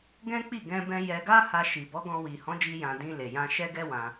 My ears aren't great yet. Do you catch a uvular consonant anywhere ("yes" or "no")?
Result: no